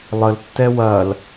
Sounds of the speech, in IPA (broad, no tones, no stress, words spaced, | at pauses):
lˠəltːɛ wɐl